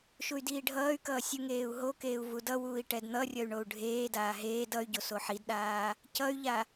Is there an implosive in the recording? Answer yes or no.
yes